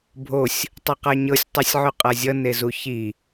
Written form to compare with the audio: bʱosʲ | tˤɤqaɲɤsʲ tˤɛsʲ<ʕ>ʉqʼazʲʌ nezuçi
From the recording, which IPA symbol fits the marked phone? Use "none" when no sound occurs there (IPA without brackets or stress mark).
ʕ